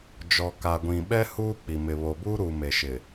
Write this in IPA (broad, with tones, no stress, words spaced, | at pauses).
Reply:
d͡ʒɔ˨ka˨ɡʷĩ˨ɓɛ˦ huː˦k͡pi˨mɪ˨ βo˨buː˦ ɾuː˨me˨ʃɪ˨